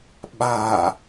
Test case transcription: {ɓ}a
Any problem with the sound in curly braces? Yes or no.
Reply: no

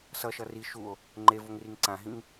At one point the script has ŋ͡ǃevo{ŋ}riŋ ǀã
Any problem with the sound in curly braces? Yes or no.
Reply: no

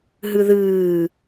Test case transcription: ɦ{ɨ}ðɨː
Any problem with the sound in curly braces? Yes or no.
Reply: no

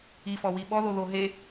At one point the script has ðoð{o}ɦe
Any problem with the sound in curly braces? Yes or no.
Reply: no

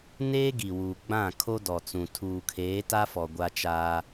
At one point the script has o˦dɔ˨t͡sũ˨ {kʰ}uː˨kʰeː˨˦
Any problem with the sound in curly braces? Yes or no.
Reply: yes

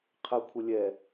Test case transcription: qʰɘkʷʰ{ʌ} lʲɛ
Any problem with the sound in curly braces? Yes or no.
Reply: yes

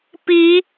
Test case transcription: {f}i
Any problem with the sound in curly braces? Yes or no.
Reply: yes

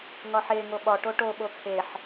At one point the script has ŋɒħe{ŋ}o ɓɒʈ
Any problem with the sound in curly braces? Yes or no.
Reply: no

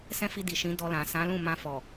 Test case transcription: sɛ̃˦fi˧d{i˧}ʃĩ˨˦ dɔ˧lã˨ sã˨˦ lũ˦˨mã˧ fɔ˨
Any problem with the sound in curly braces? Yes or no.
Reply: yes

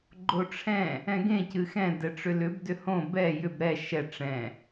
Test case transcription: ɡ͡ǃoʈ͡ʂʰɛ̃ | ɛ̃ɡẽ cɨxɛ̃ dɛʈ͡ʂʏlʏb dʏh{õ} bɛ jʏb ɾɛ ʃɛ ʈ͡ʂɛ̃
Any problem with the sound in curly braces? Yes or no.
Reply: no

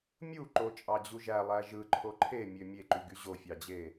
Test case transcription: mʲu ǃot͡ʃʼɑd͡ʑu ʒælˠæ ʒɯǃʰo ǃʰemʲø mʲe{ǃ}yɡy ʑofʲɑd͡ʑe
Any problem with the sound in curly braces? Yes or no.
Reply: no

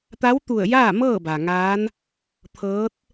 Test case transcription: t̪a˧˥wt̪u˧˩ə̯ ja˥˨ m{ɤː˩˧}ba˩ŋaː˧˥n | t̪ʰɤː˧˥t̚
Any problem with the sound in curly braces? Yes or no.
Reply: yes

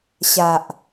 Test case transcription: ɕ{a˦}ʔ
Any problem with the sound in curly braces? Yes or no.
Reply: yes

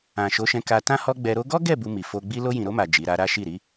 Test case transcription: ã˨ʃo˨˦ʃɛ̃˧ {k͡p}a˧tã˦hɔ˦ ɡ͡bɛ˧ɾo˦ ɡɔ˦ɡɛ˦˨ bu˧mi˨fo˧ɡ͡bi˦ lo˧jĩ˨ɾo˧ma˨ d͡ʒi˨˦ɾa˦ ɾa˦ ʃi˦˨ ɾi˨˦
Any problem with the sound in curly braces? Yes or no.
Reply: yes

